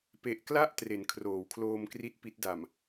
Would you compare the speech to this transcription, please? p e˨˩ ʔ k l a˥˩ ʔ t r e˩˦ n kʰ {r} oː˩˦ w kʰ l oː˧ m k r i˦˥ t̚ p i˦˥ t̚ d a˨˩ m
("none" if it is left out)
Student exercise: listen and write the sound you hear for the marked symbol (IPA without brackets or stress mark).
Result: r